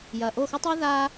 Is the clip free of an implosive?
yes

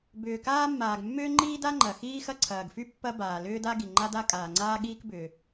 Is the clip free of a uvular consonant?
yes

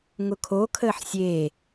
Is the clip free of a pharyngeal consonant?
no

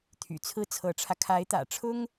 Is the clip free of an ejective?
yes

